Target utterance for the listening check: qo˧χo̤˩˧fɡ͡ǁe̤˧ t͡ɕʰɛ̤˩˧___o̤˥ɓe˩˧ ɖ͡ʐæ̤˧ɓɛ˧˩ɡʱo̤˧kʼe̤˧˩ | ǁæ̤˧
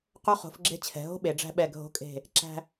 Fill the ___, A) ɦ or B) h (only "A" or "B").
A